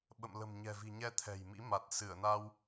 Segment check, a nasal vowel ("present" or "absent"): absent